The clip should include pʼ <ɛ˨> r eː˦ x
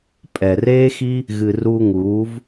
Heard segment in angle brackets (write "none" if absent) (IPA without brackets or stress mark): ɛ˨